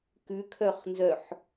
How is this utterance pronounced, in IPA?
k ʉ kʰ œ χ n z œ ħ

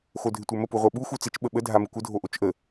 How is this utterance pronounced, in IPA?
x o dʱ ɪ tʷ ə˞ m ə p u ʁʷ ə˞ ɓ u x u t͡s ɪ t͡ʃ ɓ ə ɓ ə dʱ a m ɪ kʷ ə dʱ o ʔ o t͡ʃ ʔ ə

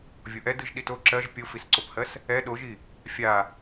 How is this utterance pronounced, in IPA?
vʲ o ʔ ɛ d ɯ ʒ ɗ i t o ǁ ɜ ʒ pʲ o f i s ǀ o p h ɜ s | ɛ ɗ o ʒ i | fʲ a

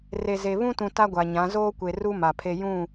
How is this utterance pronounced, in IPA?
r e˨ z e˨ β ũ˦ t ũ˨ t a˦ ɡʷ a˨ ɲ ã˨˦ z oː˦ kʷ e˨ r u˦ m a˨ pʰ e˦ j ũ˦˨

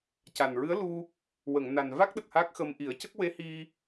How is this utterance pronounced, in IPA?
c a˨˩ n ɹ ɨ˧˥ ə̯ l u˧ | w ə˨˩˨ ŋ n a˨˩ n v a˦˥ k̚ ɗ ə˨˩ k̚ h a˦˥ k̚ x ə˧ m ʔ i˨˩˦ ə̯ c ə˦˥ k̚ w e˧˥ h i˧

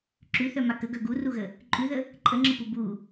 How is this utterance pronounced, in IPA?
ǁ ʉ θ œ m a k ə ɡ œ ɡ u r u ɣ ə | ǃʼ ʉ ð ə | ǃʼ ə ŋ͡ǁ ə p u b u

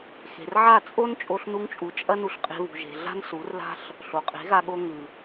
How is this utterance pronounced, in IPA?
x e̤˨ r ʕ a˦˨ t͡sʼ o˦ n t͡ʃʼ o˧ ɬ n u˧ ŋ t͡ʃʼ u˨ t͡ʃʼ ɐ˦ n u˧ ɬ qʼ e̤˧ β ṳ˨ ʒ e̤˨ ɮ a̤˦ n s u˨˦ r l a̤˦ ɬ | ɬ o˨ qʼ e̤˨˦ ɣ a˧ ɠ o˧ ŋ ʉ˨

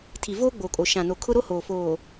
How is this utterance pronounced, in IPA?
tʰ i˨ v oː˦ ɡ͡b oː˨ kʼ o˨ ʃ ã˨ n o˨ kʰ ʊ˦ ɾ o˦ h oː˨ f oː˨

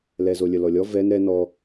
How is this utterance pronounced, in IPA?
l ɛ z o lʲ ə l ɔ lʲ ɔ v ɛ n ɾ ɛ n ɔ

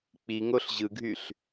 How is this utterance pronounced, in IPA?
k͡p i ŋ o ɬ ʑ ɯ ɡʱ y ɬ

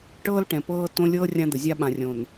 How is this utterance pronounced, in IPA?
ʈ ɤː˦ l ʈ ɛ̃˨ p ɤː˦ t õ˦ lʲ ɤː˦ rʲ ã˦ d̪ ə˨ zʲ a˦ ɓ ã˨ rʲ õ˨ n

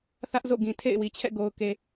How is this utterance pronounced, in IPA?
θ ä˦ ʔ z o̰˦˨ ɡ ĩ˨ tʰ ḛ˦˨ ɪ̯ w i˨ t͡ɕʰ ɛ̰˦˨ ɡ o˨ ʊ̯ k e˨

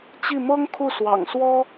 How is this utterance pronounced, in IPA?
t͡ɕ i˥˩ m ɤ˥ ŋ kʰ u˥˩ s w ɑ̰˨˩ ŋ s w ɔ˥

